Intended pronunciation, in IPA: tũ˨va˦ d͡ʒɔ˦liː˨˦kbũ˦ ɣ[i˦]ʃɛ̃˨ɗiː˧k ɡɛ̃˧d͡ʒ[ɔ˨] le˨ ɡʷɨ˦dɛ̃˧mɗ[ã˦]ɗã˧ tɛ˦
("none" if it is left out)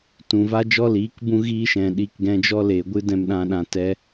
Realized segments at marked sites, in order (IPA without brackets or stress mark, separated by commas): iː˦, ɔ˦, ã˧